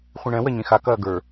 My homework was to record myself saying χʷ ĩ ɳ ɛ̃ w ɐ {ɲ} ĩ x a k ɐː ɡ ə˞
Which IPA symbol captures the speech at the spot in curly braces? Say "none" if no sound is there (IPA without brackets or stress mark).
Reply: ɲ